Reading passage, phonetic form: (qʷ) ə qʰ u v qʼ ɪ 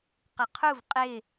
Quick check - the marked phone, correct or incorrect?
incorrect: q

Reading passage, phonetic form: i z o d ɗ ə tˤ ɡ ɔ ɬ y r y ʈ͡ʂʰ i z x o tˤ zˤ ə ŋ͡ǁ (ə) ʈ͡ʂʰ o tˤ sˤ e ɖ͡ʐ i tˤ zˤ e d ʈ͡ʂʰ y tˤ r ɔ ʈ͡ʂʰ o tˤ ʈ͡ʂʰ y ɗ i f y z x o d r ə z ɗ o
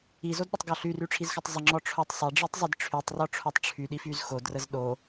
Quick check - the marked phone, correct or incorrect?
incorrect: ɔ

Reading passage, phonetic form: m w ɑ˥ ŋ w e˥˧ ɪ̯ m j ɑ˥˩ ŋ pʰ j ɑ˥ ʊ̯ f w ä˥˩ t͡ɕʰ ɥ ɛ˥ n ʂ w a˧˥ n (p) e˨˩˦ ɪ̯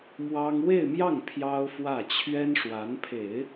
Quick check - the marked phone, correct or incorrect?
incorrect: pʰ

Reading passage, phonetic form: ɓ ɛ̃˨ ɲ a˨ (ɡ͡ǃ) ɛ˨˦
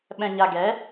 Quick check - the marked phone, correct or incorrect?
incorrect: ɡ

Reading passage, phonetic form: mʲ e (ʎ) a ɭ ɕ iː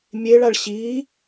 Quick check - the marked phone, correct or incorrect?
incorrect: ɭ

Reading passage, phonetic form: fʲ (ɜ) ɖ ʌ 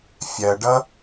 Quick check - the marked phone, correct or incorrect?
correct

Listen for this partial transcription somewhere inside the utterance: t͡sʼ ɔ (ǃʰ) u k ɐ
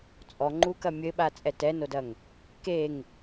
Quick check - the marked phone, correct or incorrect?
incorrect: ŋ͡ǃ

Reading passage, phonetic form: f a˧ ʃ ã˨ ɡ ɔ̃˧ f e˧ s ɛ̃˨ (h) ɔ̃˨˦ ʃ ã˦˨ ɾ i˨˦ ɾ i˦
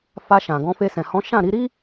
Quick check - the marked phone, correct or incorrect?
correct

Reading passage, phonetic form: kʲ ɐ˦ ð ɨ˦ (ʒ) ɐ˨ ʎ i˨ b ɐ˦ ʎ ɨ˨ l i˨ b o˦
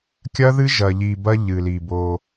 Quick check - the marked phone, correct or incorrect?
correct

